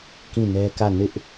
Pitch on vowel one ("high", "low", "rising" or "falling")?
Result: falling